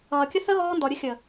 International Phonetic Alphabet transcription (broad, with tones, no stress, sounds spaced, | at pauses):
ʌː˨ kʲ ə˦ θ ə˦ ɣ ɔː˦ n d ɔ˨ ɾʲ ə˦ xʲ ə˨